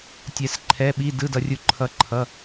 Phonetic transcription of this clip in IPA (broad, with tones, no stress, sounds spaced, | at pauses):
tʲ ɛ˧ s ǃʰ ɛ˧˥˧ ɓ i˧˥˧ d ɯ˧˥˧ d ʌ˧ rʲ u˧ ǃʰ ʌ˧ ǃʰ ʌ˧˥˧